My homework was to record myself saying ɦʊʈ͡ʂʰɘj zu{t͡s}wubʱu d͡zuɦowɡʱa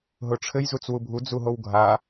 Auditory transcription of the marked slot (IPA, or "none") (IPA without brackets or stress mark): t͡s